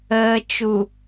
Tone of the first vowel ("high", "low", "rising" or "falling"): low